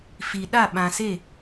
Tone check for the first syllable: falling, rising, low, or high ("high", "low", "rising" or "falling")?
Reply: low